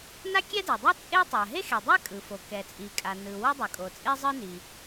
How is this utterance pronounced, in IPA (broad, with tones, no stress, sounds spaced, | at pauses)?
n a˥ kʲ ɛ˥ d e˩ dˤ ʌ˥ t͡sʼ e˥ tˤ a˩ ɦ e˥ x e˩ dˤ a˥ kʼ ɯ˩ f o˩ k ɛ˩ t͡sʼ i˩ kʼ a˩ n ɯ˩ w ʌ˥ dˤ ʌ˩ kʼ o˩ t͡sʼ e˥ zˤ ɯ˥ n i˩